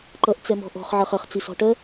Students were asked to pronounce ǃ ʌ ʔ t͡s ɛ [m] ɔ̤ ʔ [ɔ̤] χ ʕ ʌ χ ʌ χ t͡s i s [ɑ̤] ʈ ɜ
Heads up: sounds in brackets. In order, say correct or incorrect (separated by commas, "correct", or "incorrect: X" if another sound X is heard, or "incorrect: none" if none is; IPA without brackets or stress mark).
correct, correct, incorrect: ɔ̤